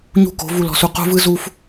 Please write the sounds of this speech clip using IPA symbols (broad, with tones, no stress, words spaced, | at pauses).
ɲṳ˦˨ko̤˨˦ vu˨lɔ̤˨su˨ qṳ˦vɯ˦ zu˦f